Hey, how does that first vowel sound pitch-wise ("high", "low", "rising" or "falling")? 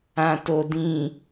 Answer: low